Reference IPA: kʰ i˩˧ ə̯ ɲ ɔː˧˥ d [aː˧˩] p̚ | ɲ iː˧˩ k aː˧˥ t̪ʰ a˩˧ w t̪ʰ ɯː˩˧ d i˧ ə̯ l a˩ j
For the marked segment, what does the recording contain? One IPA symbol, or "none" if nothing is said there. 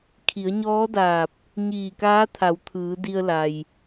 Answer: aː˧˩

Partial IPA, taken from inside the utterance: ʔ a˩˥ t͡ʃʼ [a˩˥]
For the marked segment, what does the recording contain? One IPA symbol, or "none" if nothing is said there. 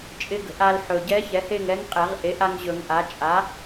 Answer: a˩˥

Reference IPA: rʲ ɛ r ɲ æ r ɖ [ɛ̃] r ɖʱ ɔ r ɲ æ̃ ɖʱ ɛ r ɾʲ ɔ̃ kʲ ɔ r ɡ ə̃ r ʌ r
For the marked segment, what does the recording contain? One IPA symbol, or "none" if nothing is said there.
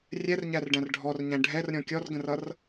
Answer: æ̃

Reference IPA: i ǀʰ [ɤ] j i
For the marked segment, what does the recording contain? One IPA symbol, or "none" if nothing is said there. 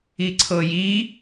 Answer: ɤ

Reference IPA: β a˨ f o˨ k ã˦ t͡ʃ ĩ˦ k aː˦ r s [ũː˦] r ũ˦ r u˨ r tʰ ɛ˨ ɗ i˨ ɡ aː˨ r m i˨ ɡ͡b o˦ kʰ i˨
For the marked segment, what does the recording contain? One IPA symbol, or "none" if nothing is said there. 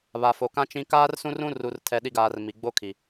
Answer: ũ˦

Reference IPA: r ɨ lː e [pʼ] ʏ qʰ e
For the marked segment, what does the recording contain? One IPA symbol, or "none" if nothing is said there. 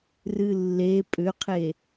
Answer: pʼ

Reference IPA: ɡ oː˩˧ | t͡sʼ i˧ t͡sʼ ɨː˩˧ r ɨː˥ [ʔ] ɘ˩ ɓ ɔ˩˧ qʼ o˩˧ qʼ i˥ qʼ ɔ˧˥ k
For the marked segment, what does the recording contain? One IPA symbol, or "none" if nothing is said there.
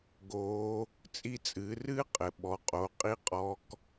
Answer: qʼ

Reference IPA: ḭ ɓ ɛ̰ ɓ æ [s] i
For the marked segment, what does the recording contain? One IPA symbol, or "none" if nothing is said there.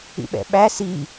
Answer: s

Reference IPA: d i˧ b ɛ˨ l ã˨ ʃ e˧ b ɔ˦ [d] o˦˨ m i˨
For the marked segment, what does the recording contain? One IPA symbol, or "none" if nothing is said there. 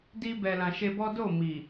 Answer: d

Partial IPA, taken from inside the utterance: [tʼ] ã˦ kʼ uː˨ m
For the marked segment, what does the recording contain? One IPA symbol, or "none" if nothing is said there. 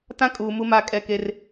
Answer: t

